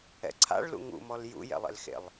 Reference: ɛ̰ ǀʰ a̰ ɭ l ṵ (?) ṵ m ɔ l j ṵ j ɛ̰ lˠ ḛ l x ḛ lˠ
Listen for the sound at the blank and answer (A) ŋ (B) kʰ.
A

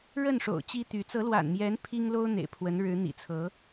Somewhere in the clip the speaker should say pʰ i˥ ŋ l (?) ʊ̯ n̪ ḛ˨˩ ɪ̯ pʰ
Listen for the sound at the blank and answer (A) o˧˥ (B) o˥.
B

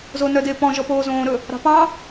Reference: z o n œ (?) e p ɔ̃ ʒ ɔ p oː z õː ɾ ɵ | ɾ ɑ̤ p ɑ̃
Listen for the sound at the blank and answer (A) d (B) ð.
A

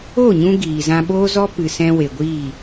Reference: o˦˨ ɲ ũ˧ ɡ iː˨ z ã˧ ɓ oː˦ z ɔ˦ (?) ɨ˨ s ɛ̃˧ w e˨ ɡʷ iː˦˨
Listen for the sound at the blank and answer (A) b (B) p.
B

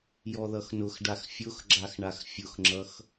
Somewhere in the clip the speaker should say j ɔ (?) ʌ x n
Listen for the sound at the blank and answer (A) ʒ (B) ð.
B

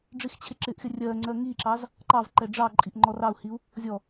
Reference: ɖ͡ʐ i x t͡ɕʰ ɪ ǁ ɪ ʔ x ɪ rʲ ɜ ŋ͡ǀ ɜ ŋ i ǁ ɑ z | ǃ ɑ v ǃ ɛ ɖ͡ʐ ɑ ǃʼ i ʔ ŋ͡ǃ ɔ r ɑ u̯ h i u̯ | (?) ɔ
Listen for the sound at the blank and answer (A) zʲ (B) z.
A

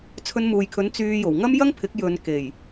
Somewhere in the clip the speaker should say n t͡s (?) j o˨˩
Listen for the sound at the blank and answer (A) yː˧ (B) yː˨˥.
A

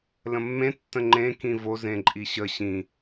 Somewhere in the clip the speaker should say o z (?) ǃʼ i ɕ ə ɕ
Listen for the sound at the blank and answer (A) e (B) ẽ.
B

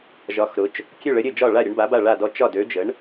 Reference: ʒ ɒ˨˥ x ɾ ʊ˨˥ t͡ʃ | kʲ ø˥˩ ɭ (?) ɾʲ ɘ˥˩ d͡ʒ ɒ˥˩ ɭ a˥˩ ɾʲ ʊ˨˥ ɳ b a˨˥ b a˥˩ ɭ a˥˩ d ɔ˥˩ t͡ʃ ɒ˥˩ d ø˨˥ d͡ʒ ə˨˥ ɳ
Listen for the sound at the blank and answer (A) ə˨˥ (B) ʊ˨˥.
A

